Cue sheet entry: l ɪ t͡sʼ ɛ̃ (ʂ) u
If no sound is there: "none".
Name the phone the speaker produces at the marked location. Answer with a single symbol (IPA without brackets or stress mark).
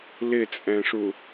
ʂ